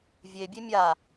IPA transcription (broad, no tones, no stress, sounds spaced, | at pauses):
vʲ e bʲ e mʲ a